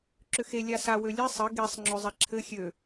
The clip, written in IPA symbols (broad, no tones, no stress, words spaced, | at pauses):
ǁʏxe lʲasa wølʲɛ sˤɘ ɡesˤ ŋ͡ǁøzˤɛǁʰɘ xʲø